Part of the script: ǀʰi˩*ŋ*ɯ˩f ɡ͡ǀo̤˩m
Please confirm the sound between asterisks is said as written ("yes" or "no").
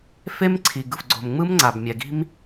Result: no